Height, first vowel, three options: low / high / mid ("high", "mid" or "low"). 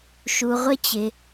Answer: high